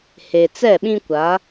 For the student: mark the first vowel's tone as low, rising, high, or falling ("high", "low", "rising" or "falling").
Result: low